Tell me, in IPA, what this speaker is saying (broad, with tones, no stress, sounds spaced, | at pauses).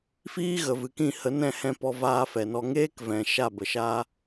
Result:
f iː˦ ɣ ə˨ v ɨ˨ k ĩ˦˨ h ə˨˦ n ɛ̃˦˨ h ɛ̃˧ p ɔ˧ v aː˧ f ɛ˨ n ɔ˧ ŋ eː˦ k v ɛ̃˨ ʃ a˦˨ b ə˨ ʃ aː˦